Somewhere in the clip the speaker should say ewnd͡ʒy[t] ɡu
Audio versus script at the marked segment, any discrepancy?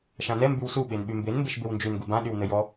yes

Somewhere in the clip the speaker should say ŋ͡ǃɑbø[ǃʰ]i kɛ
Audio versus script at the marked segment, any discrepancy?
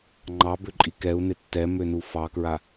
yes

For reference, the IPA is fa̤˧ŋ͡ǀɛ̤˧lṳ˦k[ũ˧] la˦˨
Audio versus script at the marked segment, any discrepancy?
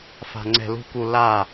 yes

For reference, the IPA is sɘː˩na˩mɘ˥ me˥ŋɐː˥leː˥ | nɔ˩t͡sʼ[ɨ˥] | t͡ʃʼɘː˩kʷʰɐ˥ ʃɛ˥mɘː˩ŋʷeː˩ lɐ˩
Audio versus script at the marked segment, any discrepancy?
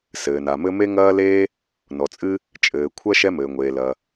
no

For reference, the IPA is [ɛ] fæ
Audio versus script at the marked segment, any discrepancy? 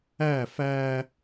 yes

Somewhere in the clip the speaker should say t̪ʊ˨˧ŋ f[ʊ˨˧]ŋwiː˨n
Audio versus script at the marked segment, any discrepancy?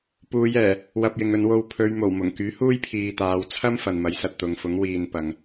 yes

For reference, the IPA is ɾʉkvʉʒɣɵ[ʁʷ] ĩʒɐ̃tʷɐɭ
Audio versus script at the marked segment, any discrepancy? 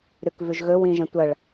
yes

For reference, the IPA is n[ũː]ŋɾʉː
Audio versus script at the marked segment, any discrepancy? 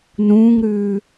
no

